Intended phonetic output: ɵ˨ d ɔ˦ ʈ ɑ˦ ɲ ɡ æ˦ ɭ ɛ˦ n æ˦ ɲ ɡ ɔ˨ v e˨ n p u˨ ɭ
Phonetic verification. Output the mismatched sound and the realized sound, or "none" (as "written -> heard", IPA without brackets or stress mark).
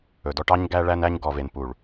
ɛ˦ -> æ˦